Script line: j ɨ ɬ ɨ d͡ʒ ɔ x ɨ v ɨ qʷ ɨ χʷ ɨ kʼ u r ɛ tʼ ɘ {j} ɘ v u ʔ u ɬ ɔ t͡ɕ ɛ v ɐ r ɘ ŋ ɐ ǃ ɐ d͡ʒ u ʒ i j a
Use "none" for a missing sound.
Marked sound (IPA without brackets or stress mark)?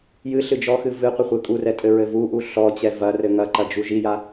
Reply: ɹ